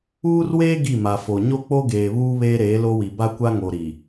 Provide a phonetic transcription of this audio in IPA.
uː˦ r w eː˦ ɡ i˦˨ m a˨ f o˨ ɲ o˦ k͡p o˦ ɡ eː˨ β uː˦ β eː˦ ɾ eː˨˦ l o˦ w i˨ b a˦ kʷ a˦ ŋ o˨ ɾ i˨

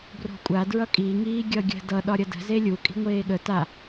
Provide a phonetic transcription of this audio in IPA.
b r o̤ kʷʼ a d ɹ ʌ kʼ i ŋ iː ɡʲ ʌ ɡʲ ə̤ d ʌ ɗ ɒ ɾʲ ʌ d ə̤ z e lʲ u kʼ i̤ ŋʷ eː ɠ ə t a

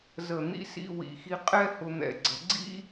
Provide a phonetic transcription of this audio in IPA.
z ə˨˩ n̪ ḭ˥ s ḭ˧˥˧ w ḭ˨˩ x i˧ qʼ ɛ˥ h ʊ˧ n̪ ɛ̰˨˩ ɡ͡ǀ ə˨˩˦ ɡ͡ǀ ḭ˥

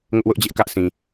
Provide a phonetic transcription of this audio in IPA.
ŋ ʊ˦ ʔ w ʊ˦ ʔ d͡ʑ ɪ˦ ʔ k ä˦ ʔ s ĩ˨

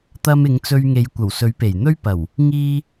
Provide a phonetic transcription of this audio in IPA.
t̪ ɐ˧ m ɪ˨˧ ŋ t͡s ɵ˧ ɥ ŋ e˨˧ j kʷ ɐ˨˩ w s ɵ˨˥ ɥ p e˨˩ j n̪ ɵ˥ ɥ p ɐ˨˩ w | ŋ iː˧

